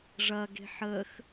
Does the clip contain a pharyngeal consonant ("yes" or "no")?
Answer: yes